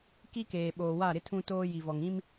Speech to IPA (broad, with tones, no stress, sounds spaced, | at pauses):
k i˦ k eː˨ ɓ oː˨ w a˦˨ ɾ ɪ˦ tʰ ũ˦ t oː˦ j i˨ v ɔ˨ ŋ ĩ˦ m